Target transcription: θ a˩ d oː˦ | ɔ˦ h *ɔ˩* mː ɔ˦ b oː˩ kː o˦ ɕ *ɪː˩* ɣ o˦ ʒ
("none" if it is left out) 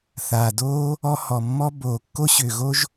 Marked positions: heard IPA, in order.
ɔ˩, ʏː˩

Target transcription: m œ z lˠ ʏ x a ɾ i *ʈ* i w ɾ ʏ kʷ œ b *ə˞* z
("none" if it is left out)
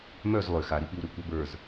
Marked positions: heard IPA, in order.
p, ə˞

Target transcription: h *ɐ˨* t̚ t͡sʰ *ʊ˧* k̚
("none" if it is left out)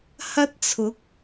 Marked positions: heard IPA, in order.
ɐ˥, ʊ˨˥

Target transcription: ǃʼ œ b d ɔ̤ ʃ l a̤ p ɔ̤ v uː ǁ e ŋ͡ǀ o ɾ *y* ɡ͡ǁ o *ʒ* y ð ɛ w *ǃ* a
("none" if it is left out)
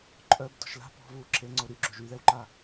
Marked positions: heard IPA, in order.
y, ʒ, ǃ

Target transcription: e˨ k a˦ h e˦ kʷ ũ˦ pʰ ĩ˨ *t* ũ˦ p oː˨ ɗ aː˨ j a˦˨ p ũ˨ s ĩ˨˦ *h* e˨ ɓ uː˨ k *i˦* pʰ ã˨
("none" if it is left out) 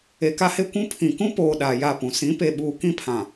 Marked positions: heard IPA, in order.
k, p, ĩ˦

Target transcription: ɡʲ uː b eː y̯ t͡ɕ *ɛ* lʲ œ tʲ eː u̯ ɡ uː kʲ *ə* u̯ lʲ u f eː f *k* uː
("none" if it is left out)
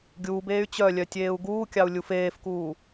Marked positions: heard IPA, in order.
œ, ɑ, k

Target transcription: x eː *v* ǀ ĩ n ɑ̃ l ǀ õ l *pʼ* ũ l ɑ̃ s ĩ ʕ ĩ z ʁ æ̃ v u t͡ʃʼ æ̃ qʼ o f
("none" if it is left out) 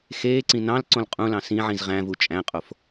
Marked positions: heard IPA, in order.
none, qʼ

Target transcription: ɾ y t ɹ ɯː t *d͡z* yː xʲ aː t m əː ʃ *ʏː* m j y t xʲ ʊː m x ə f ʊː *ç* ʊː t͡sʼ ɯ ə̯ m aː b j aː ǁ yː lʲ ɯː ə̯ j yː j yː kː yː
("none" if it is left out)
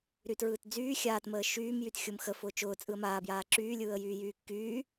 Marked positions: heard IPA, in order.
d͡z, yː, t͡ʃ

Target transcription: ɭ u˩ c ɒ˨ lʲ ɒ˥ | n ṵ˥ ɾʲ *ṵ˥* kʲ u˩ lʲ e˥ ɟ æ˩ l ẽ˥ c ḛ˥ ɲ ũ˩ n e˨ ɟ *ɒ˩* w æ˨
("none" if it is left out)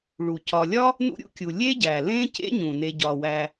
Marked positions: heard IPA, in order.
ṵ˥, ɒ˩

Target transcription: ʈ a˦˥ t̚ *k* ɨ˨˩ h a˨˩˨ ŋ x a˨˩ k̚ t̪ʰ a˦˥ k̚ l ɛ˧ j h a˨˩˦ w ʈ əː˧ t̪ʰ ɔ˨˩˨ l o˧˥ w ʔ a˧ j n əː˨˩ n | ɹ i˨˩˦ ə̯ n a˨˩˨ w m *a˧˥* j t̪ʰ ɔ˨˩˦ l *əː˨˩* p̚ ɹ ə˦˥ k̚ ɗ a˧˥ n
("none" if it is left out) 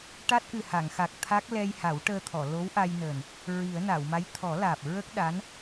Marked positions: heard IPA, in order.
ʔ, a˧˥, aː˨˩

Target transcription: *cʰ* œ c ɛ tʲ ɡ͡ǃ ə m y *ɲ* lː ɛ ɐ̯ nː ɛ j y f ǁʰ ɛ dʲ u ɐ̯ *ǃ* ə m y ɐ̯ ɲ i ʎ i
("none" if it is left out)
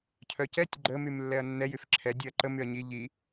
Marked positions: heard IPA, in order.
cʰ, m, ǃ

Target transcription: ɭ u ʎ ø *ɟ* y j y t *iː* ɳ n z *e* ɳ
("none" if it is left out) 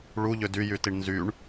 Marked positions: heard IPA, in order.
d, i, y

